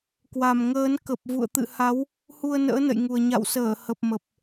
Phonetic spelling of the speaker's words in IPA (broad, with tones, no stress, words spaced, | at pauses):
kwa˨˩mŋəː˨˦n kə˨˩p̚vṵ˧˨ə̯ t̪ɨ̰˧˨ha˨˦w | hu˧ə̯nə̰ː˧˥nə̰˧˨jŋu˨˩ə̯ ɲa̰˧˨wsəː˧˩ hə˨˩p̚mə˨˩p̚